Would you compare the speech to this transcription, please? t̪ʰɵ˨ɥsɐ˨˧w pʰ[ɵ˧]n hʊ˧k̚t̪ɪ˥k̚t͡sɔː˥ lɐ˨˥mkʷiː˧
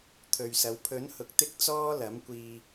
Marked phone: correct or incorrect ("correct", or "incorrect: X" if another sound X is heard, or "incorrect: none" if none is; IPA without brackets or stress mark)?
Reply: incorrect: ɵ˨˥